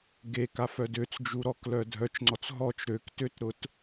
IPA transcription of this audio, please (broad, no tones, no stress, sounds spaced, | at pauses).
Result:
ɡ e k a f œ d ø t͡s d͡ʒ u ɾ ɔ k l œ dʱ œ t͡ʃ ŋ͡ǀ ɔ t͡s ɦ ɔ t͡ʃ ɾ ø k t ø t ɾ ʊ t